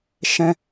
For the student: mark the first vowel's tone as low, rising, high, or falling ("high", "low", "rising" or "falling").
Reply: low